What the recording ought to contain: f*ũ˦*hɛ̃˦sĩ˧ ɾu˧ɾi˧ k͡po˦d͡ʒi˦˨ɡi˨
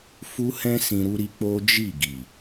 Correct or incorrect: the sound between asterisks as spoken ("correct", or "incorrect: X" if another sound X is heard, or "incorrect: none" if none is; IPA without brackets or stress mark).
incorrect: u˦